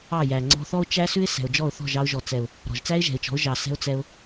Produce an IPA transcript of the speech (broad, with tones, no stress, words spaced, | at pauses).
ɑ˦˨ jæ˨ŋ͡ǀɔ̤˧θɔ˦ʊ̯t͡ʃæ˦ sʉ˦ɪ̯sɛ̤˨ʊ̯d͡ʒɔ˦˨ʊ̯ θɔ̤˦˨ʒɑ˧ʊ̯ ʒɔ˨ t͡sɛ˨ʊ̯ | ɾɔ̤˨ʒt͡sæ˦ɪ̯ʒɛ̤˨ɪ̯t͡ʃɔ̤˨˦ʊ̯ ʒɑ˨sɛ̤˧ʊ̯ t͡sɛ˧ʊ̯